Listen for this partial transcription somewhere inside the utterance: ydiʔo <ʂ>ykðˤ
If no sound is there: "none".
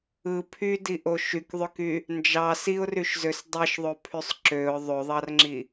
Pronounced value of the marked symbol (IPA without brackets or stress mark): ʃ